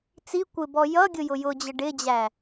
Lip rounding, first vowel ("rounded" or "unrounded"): unrounded